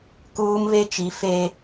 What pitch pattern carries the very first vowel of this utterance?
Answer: high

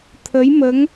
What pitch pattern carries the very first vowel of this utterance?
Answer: rising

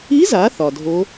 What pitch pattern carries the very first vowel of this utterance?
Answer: rising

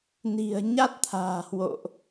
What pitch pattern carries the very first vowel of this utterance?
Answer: low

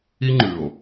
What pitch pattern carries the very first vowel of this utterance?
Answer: high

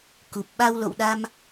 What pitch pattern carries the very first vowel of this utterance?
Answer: low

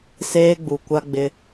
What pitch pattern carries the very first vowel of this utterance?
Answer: high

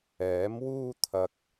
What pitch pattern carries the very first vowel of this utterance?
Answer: rising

